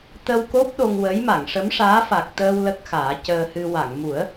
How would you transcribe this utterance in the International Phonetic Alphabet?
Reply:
t̪ ə˧ w k o˦˥ p̚ ɗ o˧ ŋ w ə˧˥ j m a˨˩˨ ŋ ʂ ə˧˥ m ʂ aː˧˥ f a˨˩ k̚ t̪ əː˧ w l ə˦˥ k̚ x aː˨˩˦ c əː˧ h ɨ˧ w a˨˩˨ ŋ m u˨˩˦ ə̯

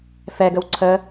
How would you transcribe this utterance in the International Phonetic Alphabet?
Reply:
f ɛ ɡ ə w ǀʰ ə

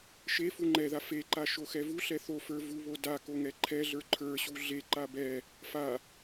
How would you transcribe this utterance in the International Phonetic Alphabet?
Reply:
ʃ e f u ŋ͡ǃ ɛ ð a f e ǃ a ʃ o x ɛ v u ɬ ɛ θ o f ə˞ v u β o d a k o ŋ ɛ ǃʰ ɛ ɮ ə˞ ǃʰ ə˞ ɕ u ɮ e ǃ a b ɛ | f a

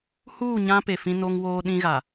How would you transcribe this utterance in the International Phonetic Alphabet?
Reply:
h uː˦˨ ɲ ã˦ p e˨ f ĩ˦ n o˦ ŋ w oː˦ ɗ ĩ˦ ɣ a˨

